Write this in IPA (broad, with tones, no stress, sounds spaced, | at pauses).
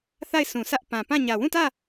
θ a˦˨ ɪ̯ sʰ ũ˨ s ä˦ ʔ p ã˨ p ã˦˨ ɲ ä˨ w ũ˦˨ t ä˦˨